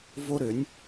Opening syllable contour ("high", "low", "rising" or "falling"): high